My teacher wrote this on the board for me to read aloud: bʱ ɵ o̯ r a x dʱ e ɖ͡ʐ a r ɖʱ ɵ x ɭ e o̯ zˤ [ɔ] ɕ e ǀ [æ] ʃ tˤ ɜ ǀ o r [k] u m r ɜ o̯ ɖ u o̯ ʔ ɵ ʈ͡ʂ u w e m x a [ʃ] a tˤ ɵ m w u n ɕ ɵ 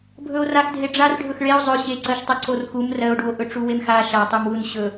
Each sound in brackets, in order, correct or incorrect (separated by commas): incorrect, incorrect, correct, correct